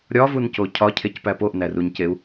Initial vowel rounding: rounded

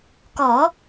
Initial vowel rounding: rounded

